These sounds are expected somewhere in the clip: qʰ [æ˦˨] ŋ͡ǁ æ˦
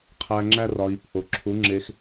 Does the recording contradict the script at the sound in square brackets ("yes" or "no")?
yes